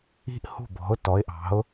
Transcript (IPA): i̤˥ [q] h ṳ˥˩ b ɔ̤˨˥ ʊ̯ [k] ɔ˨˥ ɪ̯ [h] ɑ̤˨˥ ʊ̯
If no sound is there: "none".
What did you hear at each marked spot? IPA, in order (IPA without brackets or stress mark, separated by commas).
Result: ʔ, t, ʔ